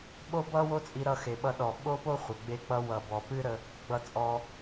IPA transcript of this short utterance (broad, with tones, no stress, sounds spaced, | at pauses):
ɓ o˥ b ʌ˥ w o˥ t͡sʼ i˧ ɾ ʌ˧ x e˩ ɓ ʌ˧ ɗ ɔ˩ ɓ o˥ p o˥ χʷ ə˩ ɡ͡b e˧ k͡p ʌ˧ w ʌ˩ b ɔ˩ p ɨ˥ ɾ ə˧ | ɡ͡b ʌ˧ t͡sʼ ɔ˧